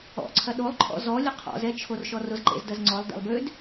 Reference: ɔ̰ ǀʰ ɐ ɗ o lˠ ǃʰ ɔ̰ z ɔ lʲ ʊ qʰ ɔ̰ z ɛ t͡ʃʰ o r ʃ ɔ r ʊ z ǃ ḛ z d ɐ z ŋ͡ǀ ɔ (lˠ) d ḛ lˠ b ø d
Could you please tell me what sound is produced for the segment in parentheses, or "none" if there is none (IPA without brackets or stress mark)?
lˠ